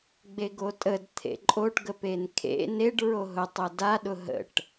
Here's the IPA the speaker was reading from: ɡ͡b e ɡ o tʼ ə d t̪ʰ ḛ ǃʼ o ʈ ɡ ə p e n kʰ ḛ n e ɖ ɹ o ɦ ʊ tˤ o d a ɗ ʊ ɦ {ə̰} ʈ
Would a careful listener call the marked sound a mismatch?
no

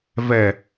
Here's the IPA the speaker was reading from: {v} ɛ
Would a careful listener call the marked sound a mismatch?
no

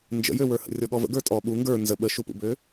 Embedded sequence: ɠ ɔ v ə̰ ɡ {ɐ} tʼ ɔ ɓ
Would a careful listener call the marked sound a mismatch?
yes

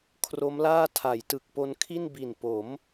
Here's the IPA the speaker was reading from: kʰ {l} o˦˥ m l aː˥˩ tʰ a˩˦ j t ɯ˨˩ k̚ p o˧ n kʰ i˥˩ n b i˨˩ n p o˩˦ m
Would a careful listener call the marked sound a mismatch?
yes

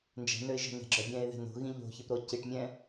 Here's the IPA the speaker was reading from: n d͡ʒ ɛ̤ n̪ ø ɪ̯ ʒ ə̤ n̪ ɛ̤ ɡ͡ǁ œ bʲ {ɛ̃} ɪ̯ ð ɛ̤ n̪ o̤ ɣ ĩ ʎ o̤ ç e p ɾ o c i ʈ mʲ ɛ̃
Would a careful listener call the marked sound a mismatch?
no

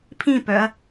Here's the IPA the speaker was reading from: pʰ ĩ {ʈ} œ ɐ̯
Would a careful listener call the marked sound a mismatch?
yes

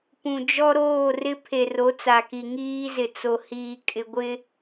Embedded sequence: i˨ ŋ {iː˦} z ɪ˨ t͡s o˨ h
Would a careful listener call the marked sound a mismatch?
no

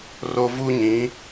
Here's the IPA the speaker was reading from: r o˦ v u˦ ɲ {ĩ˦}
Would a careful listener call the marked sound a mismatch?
yes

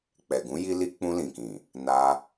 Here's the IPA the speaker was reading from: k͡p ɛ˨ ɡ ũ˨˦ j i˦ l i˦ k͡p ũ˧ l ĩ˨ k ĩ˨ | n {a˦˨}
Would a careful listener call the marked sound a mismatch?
yes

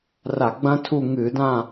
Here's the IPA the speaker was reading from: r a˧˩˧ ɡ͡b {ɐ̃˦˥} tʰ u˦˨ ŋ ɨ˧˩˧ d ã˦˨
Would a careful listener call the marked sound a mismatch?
no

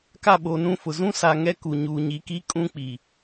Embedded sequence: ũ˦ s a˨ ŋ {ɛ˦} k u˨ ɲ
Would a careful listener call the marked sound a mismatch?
no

